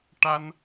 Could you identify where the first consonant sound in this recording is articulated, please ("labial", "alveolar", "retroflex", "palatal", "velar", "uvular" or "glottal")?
retroflex